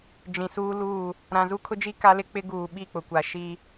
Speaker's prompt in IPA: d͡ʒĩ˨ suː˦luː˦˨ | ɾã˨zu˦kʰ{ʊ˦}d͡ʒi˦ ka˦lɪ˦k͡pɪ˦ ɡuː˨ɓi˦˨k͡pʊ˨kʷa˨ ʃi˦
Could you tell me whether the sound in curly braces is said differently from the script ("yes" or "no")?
no